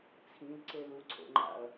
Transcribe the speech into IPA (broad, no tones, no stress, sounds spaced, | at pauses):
t͡sʰ ĩ l ǀ e l u ǀʰ o̰ ŋ͡ǃ a̰ ɐ̯